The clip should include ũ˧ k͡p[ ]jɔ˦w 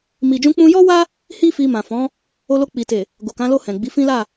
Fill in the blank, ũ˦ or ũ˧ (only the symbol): ũ˧